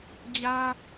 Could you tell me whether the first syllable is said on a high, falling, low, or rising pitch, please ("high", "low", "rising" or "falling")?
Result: high